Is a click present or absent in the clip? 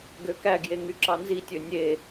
present